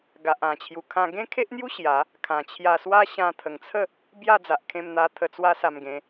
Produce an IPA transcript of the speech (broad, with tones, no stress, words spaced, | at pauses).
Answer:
ɡa˨ʔã˨˩t͡ɕʰju˨˩kʰã˧ ɡẽ˦kʰe˦ʔn̪ju˦ ɕja˨˦ | kʰã˨˩t͡ɕʰja˧swa˦ ɕã˧t̪ʰə˨˩ŋt͡sʰə˥˧ | bja˥˧d͡za˨ʔkʰẽ˧mn̪a˧ t̪ʰə˧t͡swa˦sa˧mɡẽ˧